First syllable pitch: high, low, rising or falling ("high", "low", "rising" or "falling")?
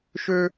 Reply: high